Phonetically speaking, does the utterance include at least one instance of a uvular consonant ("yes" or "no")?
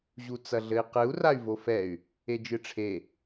yes